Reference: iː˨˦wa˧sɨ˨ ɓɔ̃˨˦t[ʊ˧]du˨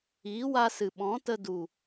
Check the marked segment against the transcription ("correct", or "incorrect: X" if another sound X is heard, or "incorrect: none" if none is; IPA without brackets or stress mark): incorrect: ə˧